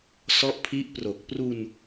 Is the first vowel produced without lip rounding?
no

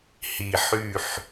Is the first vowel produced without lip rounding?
yes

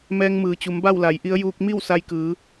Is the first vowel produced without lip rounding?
yes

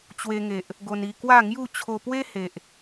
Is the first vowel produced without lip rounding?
yes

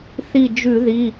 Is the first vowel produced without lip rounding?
yes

